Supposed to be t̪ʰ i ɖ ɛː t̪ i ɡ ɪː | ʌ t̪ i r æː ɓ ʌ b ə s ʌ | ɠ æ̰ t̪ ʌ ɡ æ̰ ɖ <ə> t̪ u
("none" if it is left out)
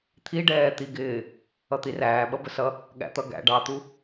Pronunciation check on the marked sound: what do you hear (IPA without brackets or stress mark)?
ɑ